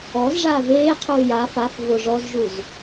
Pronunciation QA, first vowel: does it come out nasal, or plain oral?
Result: oral